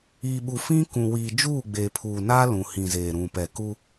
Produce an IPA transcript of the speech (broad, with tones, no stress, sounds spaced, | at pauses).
iː˨ ɓ u˨ f ĩ˦ k ũ˨ w iː˨ d͡ʒ uː˦˨ ɡ͡b eː˨ pʰ uː˨ n aː˦ l ũ˨ h ĩ˨ z eː˨ ɾ ũ˨ p ɛ˨ k u˦